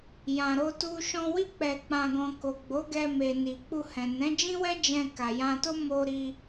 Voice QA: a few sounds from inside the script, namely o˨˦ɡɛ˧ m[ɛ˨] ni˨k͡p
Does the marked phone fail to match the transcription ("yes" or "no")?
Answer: yes